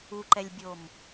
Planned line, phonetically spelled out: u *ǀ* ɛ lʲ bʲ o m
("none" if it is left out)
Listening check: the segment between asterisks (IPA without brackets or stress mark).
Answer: ǃ